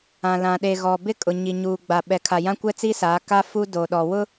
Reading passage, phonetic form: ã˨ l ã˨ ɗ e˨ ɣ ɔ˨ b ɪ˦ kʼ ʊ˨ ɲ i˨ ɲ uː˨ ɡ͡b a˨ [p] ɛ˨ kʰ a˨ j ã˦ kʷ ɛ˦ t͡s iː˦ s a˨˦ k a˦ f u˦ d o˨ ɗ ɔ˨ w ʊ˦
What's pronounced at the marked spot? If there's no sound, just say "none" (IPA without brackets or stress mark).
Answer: ɓ